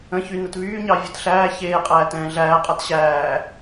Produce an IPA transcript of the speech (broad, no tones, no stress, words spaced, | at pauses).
ə̃çy nətβyːɲɑ vʲɨtɬæː çeːqʼæːtɛ̃ː ɮæːqʼat ɕæː